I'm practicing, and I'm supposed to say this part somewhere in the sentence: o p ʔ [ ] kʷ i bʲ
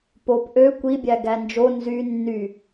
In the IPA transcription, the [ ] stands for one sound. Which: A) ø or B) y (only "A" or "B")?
A